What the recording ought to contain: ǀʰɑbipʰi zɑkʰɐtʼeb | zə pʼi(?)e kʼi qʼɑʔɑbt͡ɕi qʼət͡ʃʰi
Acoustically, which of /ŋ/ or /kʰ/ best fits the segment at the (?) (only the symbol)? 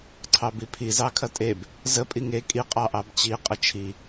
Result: ŋ